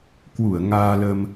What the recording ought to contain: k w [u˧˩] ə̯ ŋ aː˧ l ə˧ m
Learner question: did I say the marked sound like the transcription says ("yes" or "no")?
yes